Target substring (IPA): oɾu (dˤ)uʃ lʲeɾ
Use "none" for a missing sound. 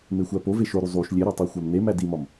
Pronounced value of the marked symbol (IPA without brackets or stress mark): zˤ